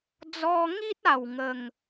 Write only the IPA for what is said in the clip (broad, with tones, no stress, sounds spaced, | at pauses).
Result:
d͡z ɔ˧ ŋ i˦ t̚ a˥˧ w ŋ ə˥˧ ŋ